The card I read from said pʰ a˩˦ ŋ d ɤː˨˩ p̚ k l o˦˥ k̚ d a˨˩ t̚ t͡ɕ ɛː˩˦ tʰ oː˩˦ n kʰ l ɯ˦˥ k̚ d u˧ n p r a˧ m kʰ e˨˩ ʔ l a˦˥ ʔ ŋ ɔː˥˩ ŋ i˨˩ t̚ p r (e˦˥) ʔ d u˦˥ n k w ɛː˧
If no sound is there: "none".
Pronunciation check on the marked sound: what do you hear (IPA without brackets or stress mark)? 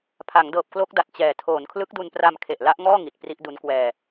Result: i˦˥